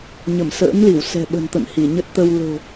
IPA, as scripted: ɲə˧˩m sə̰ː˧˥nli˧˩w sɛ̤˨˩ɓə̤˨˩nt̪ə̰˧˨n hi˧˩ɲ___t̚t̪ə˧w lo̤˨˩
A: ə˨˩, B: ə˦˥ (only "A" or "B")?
B